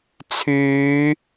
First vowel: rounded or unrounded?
rounded